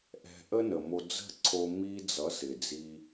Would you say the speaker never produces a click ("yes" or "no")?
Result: no